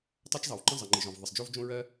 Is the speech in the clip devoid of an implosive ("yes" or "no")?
yes